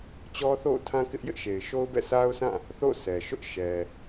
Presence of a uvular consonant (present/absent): absent